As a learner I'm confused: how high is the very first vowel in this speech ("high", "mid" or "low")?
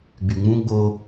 high